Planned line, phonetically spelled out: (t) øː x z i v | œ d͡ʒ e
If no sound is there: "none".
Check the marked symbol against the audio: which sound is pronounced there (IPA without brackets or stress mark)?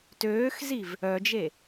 t